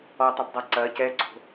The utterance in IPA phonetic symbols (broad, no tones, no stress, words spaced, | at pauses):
ɔtˤupdˤa ǀɐːc ɛǀo̤